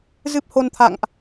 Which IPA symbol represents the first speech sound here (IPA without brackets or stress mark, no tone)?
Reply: z